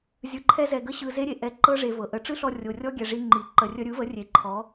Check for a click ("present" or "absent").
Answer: present